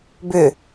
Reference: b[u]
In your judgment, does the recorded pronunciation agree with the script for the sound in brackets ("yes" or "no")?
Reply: no